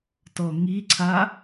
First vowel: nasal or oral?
oral